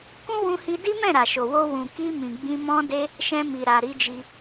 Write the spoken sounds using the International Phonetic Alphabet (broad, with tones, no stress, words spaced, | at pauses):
kũ˦wũ˧hi˧ di˦mɛ̃˦˨ ɾa˨ʃo˨wo˧ wũ˨ki˧ mĩ˨ɡ͡bĩ˧ mɔ̃˧de˧ | ʃɛ̃˧mi˨ ɾa˨ ɾi˨˦d͡ʒi˧